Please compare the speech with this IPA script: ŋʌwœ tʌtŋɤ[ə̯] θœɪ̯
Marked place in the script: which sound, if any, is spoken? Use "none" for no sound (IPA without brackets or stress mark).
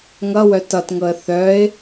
ə̯